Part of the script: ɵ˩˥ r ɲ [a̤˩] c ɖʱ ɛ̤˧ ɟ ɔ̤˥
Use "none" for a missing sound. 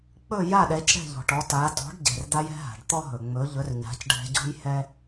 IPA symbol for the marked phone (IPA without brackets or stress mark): a̤˩˥